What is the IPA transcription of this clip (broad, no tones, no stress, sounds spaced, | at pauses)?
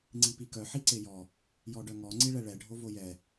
ŋ͡ǀ i p i k œ ħ i ǀ e j ɔ | j ɔ ɖ œ ŋ ɔ ŋ͡ǀ i ɭ ɛ ɭ ɛ ɖʱ o v o j ɛ